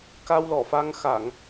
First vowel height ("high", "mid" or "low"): low